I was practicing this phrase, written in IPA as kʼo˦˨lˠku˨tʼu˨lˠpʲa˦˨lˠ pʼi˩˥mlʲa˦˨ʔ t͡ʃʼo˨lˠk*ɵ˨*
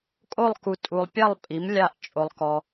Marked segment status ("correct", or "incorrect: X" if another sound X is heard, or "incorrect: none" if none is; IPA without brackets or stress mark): incorrect: ɔ˨